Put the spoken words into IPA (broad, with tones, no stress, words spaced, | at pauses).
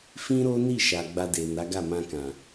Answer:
fĩ˦ɾo˦ni˦˨ ʃa˨ɡ͡ba˧de˨ na˨˦ɡa˦˨mã˧kã˨